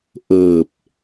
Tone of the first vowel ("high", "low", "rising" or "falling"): low